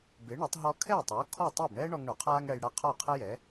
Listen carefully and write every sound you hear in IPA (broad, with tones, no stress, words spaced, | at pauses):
bɪː˩˥ɳɛ˩˥tˤ ɦɔ˧kʰɛː˥˩tˤoː˩˥ kʰɔ˥˩ tˤɪː˥˩bɳɛː˥ɳɔ˧ŋ ɳo˩qʰaː˥ŋɽɛ˧jɽa˥˩ qʰɔ˥˩qʰɛ˥jɛ˩˥